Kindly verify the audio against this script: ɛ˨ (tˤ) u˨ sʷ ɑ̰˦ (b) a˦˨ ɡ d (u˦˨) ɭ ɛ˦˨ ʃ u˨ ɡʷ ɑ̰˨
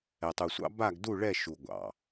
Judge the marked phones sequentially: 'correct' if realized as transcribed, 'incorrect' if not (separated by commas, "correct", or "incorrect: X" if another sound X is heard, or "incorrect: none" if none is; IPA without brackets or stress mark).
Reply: correct, correct, correct